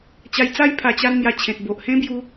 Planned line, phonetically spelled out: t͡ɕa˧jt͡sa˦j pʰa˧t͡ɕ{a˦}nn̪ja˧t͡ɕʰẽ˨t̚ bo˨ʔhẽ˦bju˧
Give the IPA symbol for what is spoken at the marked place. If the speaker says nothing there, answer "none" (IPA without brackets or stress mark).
a˦